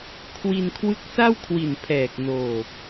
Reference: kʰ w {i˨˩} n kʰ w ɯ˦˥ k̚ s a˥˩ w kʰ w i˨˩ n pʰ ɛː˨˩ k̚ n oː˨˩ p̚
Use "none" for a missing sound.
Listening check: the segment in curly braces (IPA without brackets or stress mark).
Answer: i˧